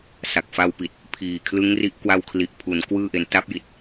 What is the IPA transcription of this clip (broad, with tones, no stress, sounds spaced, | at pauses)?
s a˨˩ k̚ f a˧ w p i˨˩ t̚ | pʰ iː˨˩ kʰ l ɯ˦˥ ŋ r i˦˥ ʔ k w a˧ w kʰ l i˨˩ ʔ pʰ u˩˦ n k w ɯː˥˩ ʔ e˧ n t a˦˥ p̚ j i˨˩ t̚